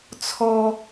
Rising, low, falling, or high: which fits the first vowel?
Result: high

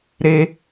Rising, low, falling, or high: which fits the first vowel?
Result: high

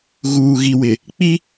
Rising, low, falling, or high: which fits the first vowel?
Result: low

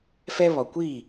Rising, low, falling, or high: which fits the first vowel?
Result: high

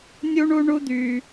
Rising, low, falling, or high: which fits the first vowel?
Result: high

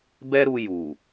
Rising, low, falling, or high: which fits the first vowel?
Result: high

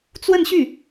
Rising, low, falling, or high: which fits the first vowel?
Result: falling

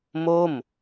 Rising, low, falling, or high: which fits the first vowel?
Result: falling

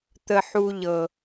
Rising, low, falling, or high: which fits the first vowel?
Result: low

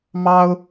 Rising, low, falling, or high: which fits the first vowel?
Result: high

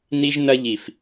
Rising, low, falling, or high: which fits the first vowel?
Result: high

